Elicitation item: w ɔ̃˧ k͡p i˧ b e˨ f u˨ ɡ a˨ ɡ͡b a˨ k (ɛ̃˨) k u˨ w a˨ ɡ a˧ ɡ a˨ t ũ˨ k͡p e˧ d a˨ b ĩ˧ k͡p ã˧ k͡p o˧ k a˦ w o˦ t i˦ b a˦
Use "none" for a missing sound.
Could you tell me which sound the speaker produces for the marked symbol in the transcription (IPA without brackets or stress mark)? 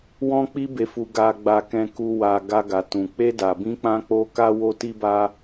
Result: ɛ̃˨